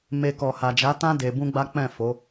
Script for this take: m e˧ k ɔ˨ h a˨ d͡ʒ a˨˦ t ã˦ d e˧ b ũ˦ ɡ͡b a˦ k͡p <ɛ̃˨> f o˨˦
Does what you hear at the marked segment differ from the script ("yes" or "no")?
yes